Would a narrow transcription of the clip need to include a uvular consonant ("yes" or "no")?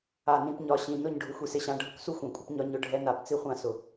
yes